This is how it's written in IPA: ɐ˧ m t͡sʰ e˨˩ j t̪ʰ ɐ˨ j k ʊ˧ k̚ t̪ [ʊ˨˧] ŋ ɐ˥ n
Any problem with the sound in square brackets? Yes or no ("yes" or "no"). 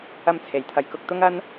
yes